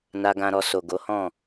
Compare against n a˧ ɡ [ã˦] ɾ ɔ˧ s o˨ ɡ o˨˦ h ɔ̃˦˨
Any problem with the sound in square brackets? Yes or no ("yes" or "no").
yes